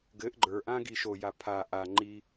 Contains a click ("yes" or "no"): yes